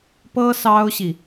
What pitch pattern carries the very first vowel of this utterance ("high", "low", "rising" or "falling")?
high